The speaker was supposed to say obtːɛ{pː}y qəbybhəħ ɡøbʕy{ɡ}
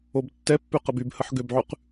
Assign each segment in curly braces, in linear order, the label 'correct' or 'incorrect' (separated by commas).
correct, incorrect